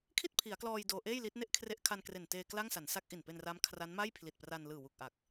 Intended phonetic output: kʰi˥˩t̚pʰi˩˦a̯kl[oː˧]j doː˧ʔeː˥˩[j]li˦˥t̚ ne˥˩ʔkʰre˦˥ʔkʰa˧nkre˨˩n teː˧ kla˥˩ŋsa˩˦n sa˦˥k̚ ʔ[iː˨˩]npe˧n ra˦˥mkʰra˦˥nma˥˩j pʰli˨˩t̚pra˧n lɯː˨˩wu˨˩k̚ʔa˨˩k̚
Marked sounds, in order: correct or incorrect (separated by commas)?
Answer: incorrect, correct, incorrect